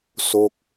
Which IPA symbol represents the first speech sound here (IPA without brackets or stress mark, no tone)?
s